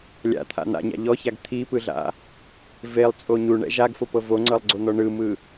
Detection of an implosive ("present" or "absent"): absent